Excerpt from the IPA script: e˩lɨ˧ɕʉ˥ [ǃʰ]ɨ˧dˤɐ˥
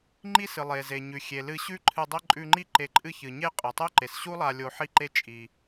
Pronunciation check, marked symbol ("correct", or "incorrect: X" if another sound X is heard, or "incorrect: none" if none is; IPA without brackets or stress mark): correct